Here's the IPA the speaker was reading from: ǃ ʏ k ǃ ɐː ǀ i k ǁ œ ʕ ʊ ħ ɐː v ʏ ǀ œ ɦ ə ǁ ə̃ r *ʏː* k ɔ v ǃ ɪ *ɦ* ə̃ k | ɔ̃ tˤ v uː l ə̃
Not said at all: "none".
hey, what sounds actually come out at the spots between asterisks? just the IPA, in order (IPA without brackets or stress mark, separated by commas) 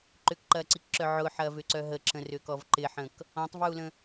ʏː, ħ